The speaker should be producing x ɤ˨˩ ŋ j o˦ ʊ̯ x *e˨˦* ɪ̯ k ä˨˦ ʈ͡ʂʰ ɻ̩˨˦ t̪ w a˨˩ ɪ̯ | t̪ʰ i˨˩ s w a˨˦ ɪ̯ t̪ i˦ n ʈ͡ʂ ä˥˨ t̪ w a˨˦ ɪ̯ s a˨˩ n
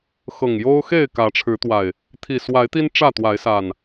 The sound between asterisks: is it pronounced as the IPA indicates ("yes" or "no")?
no